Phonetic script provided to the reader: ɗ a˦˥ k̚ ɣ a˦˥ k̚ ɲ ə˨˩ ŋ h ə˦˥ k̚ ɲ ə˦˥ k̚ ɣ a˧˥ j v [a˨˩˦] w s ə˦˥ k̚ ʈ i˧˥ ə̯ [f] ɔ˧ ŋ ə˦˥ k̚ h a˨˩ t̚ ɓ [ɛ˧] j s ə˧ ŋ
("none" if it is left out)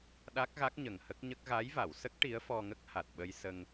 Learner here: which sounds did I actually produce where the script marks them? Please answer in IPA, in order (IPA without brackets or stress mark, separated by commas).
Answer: a˨˩˨, f, ə˧